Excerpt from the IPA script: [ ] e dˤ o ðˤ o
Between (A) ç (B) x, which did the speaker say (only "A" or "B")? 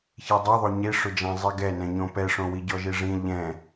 A